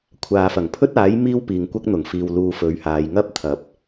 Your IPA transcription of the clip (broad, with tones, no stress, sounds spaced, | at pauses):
kʷʰ aː˨ f ɐ˨˩ ŋ pʰ ɵ˥ t̚ aː˨˥ j m iː˥ w p iː˨ ŋ kʷ ɐ˥ k̚ n̪ ʊ˨˩ ŋ f iː˨ w l uː˧ f ɵ˨˥ ɥ h aː˨˧ j ŋ ɐ˥ p̚ t̪ʰ ɐ˨˥ p̚